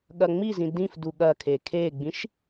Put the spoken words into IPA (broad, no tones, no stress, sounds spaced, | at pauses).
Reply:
ɠ ɐ ŋ͡m i z ĩ d ĩ f d u ɠ ɐ kʰ e kʰ e ɡ͡b ĩ ʃ